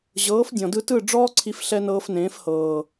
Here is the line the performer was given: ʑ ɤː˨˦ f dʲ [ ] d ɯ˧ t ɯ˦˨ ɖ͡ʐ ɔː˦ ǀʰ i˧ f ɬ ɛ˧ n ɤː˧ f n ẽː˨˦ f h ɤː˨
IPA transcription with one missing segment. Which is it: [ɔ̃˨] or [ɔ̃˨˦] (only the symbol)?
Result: ɔ̃˨